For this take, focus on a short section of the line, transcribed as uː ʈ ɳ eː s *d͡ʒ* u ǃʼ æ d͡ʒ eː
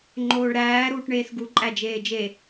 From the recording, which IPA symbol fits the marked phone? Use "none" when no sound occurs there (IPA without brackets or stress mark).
ɡ